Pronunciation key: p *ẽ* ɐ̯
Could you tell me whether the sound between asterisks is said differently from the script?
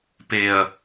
yes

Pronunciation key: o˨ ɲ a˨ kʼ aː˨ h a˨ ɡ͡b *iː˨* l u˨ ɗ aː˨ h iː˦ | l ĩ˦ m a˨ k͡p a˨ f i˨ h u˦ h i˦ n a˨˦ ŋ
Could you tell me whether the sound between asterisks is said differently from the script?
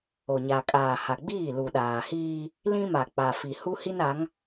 yes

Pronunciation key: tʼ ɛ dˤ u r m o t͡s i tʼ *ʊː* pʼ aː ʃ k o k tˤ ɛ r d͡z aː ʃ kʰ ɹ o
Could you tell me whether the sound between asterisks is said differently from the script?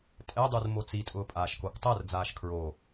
no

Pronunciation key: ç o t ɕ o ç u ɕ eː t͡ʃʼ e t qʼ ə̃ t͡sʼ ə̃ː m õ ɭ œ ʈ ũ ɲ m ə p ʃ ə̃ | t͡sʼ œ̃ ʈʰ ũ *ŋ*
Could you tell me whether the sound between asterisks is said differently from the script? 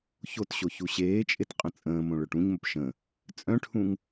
no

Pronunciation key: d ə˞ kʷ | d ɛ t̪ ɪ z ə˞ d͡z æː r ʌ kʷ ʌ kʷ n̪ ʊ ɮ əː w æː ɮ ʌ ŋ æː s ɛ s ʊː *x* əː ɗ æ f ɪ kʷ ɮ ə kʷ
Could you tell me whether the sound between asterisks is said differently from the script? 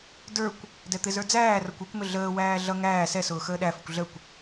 no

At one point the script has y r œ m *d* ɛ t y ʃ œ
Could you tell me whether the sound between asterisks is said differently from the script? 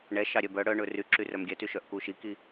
yes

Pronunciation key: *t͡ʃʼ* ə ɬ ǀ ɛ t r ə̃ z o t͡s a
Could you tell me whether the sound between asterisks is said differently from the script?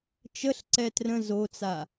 yes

